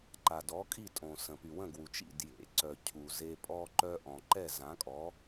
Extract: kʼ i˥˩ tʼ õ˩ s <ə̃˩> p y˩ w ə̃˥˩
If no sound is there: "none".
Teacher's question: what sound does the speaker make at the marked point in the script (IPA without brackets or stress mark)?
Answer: ə̃˩